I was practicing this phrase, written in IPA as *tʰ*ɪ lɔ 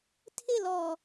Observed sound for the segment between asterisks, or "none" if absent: tʰ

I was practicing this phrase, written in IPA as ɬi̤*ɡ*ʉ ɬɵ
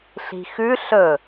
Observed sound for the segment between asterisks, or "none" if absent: x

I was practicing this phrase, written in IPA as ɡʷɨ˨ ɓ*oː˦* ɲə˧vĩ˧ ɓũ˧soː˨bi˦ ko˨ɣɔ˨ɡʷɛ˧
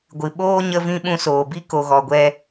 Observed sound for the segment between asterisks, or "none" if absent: oː˦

